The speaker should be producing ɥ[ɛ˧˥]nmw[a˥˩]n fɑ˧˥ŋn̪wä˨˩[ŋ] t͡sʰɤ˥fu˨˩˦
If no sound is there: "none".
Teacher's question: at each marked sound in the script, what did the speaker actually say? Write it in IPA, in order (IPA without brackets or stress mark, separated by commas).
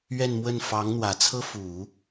ɛ˥˧, ə˥˩, none